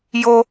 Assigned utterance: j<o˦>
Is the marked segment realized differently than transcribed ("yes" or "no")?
no